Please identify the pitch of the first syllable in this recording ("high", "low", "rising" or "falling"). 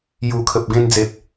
low